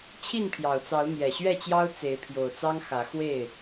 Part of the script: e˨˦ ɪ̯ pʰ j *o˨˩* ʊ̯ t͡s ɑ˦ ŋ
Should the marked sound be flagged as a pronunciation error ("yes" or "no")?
no